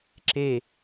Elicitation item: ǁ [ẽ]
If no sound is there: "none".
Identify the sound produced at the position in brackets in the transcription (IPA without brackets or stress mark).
e